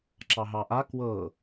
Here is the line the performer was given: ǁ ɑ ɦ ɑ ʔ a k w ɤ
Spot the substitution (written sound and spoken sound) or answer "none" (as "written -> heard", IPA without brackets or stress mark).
none